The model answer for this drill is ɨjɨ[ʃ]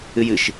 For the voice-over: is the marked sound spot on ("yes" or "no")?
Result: yes